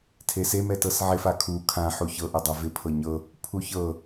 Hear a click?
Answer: no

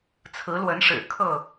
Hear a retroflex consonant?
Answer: yes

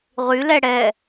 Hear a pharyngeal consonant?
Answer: no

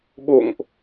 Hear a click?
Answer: no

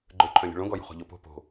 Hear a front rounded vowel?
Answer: yes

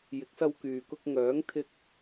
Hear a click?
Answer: no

